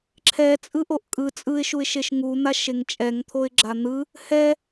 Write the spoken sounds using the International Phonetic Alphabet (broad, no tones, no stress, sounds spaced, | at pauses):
ǁʰ ɛ t͡sʼ ɯ ʔ o ʔ kʼ ɯ t͡sʼ ɯ ɪ̯ ʃ u ɪ̯ ʃ e ʃ ŋ u n̪ a ʃ e ŋ t͡ʃʼ ɛ ŋ t̪ʰ o ɪ̯ ɡ͡ǁ a n̪ ɯ | h ɛ